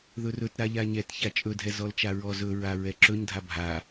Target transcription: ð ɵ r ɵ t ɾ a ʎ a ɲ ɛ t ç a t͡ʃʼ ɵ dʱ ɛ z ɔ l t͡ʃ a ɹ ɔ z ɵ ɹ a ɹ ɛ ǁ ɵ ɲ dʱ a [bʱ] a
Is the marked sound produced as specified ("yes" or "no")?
yes